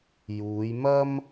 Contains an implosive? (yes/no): no